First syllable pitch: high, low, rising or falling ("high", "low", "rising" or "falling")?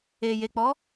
low